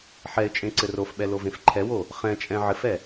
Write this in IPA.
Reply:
ħ ɛ ɪ̯ t͡ʃʼ ẽ ǀ ɘ r o f ɓ ɛ l o v ẽ f ǃʰ ɛ w o | χ ɛ̃ t͡ʃʼ ɛ̃ ʕ ɘ f ɛ

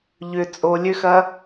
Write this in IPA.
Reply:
ʎ ʏ t͡sʼ o lʲ ø x ɐ

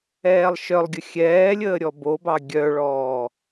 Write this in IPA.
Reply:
ɛː lˠ ʃ œ lˠ ɡʲ ə xʲ ɛː lʲ əː ɾʲ ɔ b o b ɑ ɡʲ œ ɭ ɔː

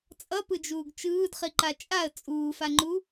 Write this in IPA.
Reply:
t͡sʼ ʌ p ɯ d͡ʒ uː ɡ t͡ʃ ɯː d χ i ǃ a t͡ʃʼ a ə̯ t͡sʼ uː f a ŋ͡ǃ u

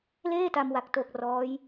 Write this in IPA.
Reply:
l eː˥˩ t a˧ m w a˨˩ k̚ t o˨˩ k̚ r ɔː˦˥ j

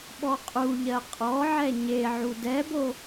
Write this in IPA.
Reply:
ɓ ɔ qʼ u ʎ ɜ qʼ ɔ ʕ ɛ ɲ e ʕ u d ɛ b o

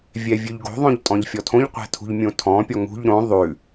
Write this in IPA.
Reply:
vʲ ɛ vʲ ʉ ʎ ɡ o̤ ðˤ õ ʎ tʼ ɔ̃ ʎ fʲ ɔ tʰ õ ʎ qʷ ɛ̤ tʰ ṳ ʎ mʲ õ tʰ ɔ̃ pʲ ɔ ŋ ṳ ʎ ɾ õ ðˤ ʉ

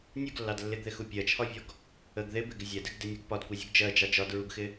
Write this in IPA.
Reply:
nʲ u ɡ lː ɑ d lː ɪ ɡ ð ɪ x u pʲ ɜ t͡ʃʰ ɒ vʲ ɔ ɡ | ə ɡ ð ɪ b ɪ ɡ ɪ zʲ ɛ d ɪ ɡ d ɪ nʲ u ɡ p ɒ d kʷ ɑ zʲ u ɡ d͡ʒ ɜ d͡ʒ ɑ d͡ʒ ɒ d ɹ u ɡ x ɪ

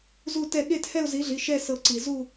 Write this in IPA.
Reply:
z u˥˧ t ɛ˥˧ ɠ e˥˧ t h ɛ˥˧ ʊ̯ z i˨˥ ɮ i˩˧˩ ʃ ɛ˥˧ s ɤ˧˩ ǀ i˩ z u˥˧

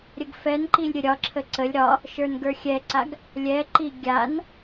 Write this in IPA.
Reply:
ɾʲ ə ɡ f ɛ n ǃ i lʲ ɾʲ ə ɾʲ ɒ ǁʰ ə ǀ ə lʲ ɾ ɒ | ʃ ə˞ n ɡ ə˞ xʲ ɛ ǀ a ɡ | lʲ ɛ ǃ i ɡʲ a n

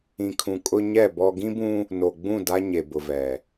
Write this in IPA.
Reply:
ĩ˨ kʰ ũ˨ kʼ ʊ˦ ɲ ɛ˦˨ b ɔ˦ ɡ ĩ˦ b ũ˦ | n o˨ ɡ͡b ũ˦˨ d a˦ ɲ e˨ b ʊ˨ v ɛ˨

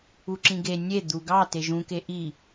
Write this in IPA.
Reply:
u ǁ ĩ ɡ e nʲ e d̪ u ɡ ɑ t e ʒ ũ k e ʔ i

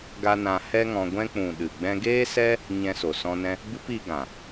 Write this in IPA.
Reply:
ɡ a˦ n ã˧ h ɛ˦ ŋ ɔ̃˧ ɡʷ ɛ̃˦ k͡p ũ˨ ɗ ɨ˨ ɡ͡b ɛ̃˧ ɡ eː˦ s ɛ˦ | ɲ ɛ̃˧ s o˨ s ɔ̃˧ n ɛ̃˦ | b ɨ˦ p i˧ ɡ ã˨

